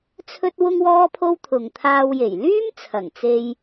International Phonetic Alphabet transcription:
t͡sʰɵ˥t̚wʊ˥ŋ wɔː˥pʰo˥wt̪ʰʊ˨ŋ t̪ʰaː˧wje˨˩j lyː˥m t͡sʰɐ˨˩ŋ t͡se˧j

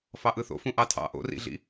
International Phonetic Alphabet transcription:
fɑʔɯθo̰fũ ʔɑtʰɑ̰ ʔo̰rḭɮḭ

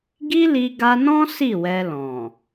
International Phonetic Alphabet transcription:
ɡi˦li˧ɡa˧nɔ̃˦ si˦˨wɛ˧lɔ̃˨

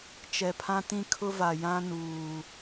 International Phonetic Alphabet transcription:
t͡ʃɛ˨pʰã˦tĩ˦kʰʊ˦ va˨ jã˦nuː˨

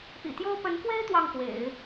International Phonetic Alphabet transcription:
pḭ˨˩t̪jo˥ʊ̯ pə˧˥nkwe˥ɪ̯ t̪wɑ˥˩ŋkwḛ˨˩˦ɪ̯

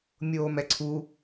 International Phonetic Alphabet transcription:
mʲoːmɛǀʰu

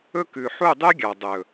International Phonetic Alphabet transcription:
ɵ˦ kʉ˨ħu˦˨dˤy˦ɡʲɑ˨ dˤɵ˨

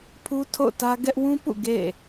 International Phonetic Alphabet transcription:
pʰu˦ tʰo̰˦˨ʊ̯tä˦ ɡɛ˦ʔ wũ˦pṵ˦˨ ɡḛ˦˨

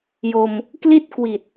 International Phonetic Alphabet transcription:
jo˧m | kli˥˩t̚ kwi˨˩t̚

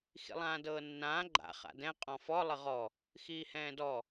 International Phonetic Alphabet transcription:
xḭlˠãːdɤːnːãː ɡ͡ǃa̰ χa̰dɛ̃ qʼɔ̃fɔ lˠəʁɔ | xiːhɛ̃ːdɔ

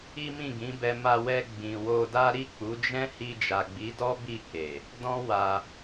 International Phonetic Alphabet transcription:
i˦mĩ˦˨ɡĩ˨˦bɛ˧ ma˧wɛ˧ ɡ͡bĩ˨wo˧da˦ ɾi˦˨k͡pu˨˦d͡ʒɛ̃˦ hi˧d͡ʒa˨ɡ͡bi˨˦dɔ˦ bi˦˨ke˨ | dɔ̃˦wa˧

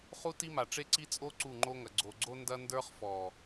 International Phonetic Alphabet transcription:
χu˦ti˦ma˨ʈ͡ʂe˦ ǀi˦t͡sʼo˦ ǀu˦˨ŋ͡ǃo˦ŋɐ˨ ɡ͡ǀo˨ɡ͡ǀo˦ ndɐ˦ ndə˞˦χfɔ˨

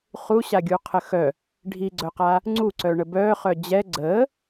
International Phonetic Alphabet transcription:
χuɕaɡʲuqʰə xœ | ɖʱiɡ͡ǀœqa | ŋ͡ǀuǀœɳə bœːχœ d͡ʑɛ ɡ͡ǀəː

